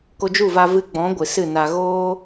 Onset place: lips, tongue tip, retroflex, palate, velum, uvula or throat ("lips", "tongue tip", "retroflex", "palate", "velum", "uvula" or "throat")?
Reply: velum